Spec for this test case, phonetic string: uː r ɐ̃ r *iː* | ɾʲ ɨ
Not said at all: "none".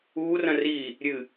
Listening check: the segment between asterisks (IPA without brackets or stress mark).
iː